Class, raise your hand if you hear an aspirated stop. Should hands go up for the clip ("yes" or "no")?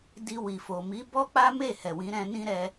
no